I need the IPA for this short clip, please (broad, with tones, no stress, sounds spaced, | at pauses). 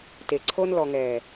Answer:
t e˨ ǀʰ o˦ n l ɔ˨ ŋ ɛː˨